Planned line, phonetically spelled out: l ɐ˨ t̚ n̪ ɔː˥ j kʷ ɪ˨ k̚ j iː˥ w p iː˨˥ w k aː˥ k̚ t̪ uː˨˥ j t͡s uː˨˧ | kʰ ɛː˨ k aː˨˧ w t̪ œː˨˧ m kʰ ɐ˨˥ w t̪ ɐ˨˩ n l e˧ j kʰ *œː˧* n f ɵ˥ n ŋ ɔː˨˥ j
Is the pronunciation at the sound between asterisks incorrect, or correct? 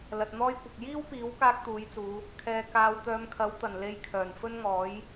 incorrect